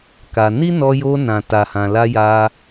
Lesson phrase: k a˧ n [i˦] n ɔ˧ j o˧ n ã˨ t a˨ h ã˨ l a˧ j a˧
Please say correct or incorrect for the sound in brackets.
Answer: correct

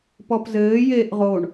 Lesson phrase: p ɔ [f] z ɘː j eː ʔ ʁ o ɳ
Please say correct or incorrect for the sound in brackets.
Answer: incorrect: p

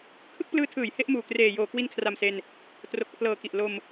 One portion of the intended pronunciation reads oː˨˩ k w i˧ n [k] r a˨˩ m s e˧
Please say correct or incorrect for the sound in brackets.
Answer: incorrect: kʰ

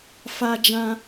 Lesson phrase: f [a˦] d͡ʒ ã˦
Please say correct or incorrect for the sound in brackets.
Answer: correct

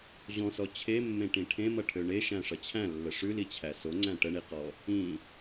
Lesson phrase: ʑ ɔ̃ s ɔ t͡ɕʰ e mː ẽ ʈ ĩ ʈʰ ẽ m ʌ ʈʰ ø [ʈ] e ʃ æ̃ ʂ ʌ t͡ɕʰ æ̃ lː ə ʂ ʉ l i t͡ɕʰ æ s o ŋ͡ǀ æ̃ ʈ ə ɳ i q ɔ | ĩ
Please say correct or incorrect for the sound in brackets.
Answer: incorrect: ɳ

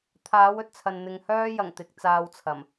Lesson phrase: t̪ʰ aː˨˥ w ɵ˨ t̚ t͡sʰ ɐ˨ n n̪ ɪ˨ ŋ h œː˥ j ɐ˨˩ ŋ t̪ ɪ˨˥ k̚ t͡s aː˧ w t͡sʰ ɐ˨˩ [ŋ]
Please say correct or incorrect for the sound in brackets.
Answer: incorrect: m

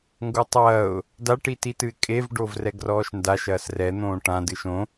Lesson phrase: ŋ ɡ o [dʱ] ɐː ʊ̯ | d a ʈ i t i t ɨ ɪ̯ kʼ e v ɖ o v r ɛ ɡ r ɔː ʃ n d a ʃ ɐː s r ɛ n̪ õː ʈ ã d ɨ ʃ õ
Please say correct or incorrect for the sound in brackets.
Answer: incorrect: tˤ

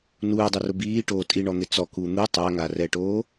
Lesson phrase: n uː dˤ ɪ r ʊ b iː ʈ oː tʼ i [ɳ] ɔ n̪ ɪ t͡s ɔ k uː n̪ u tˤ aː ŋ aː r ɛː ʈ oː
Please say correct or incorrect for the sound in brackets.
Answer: correct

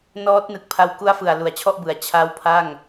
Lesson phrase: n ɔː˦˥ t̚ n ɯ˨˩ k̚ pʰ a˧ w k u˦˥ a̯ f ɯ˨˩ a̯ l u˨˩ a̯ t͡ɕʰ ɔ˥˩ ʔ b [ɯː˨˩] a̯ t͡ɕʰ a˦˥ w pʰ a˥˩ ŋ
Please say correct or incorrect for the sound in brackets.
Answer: incorrect: ɯ˨˩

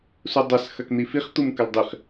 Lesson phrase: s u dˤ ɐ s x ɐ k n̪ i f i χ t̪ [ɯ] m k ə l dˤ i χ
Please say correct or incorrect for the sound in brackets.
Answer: incorrect: u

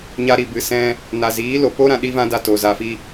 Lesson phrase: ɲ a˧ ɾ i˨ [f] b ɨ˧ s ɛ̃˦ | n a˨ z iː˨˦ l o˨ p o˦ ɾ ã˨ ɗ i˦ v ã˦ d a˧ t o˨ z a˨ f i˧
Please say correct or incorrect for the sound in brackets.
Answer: incorrect: none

